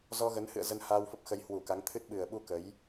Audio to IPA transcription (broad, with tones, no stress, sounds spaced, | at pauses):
z ɔ˧ ɣ ə˨˦ n h ɨ̰˧˨ ə̯ z ə˧ n h aː˧ w f ə˦˥ p̚ x ə˨˦ j h w u˧˩ k a˨˦ ŋ t̪ʰ ɨ˦˥ t̚ ɓ ɨ˨˩ ə̯ ɓ u˧ k ə˨˦ j